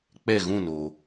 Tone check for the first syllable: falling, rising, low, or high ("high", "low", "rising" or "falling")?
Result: falling